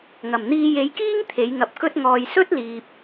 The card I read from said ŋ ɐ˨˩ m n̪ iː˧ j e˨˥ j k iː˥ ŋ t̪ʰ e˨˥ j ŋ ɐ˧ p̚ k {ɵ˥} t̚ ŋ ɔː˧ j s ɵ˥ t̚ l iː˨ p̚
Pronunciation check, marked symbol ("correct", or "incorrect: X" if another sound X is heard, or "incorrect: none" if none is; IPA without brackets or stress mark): correct